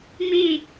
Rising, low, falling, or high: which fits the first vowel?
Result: falling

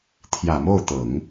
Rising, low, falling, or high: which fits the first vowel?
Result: low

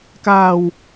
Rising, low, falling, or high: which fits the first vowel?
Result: low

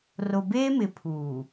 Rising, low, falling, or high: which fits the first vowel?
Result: low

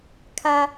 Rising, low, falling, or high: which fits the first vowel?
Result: high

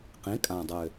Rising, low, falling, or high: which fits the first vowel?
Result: rising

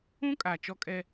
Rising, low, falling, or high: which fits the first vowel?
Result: high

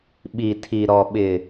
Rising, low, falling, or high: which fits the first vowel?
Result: low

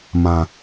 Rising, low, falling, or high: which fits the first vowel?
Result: low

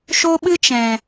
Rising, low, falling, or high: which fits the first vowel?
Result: high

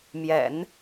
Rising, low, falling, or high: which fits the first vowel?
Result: low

